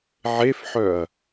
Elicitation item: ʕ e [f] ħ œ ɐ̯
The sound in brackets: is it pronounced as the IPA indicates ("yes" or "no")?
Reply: yes